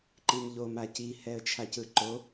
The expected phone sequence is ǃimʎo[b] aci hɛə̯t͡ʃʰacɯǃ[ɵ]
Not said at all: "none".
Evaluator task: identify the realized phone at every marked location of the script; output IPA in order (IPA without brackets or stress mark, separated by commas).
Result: m, o